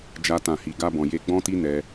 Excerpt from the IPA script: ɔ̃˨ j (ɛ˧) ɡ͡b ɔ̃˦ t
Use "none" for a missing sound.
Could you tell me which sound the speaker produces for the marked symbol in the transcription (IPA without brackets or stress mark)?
e˧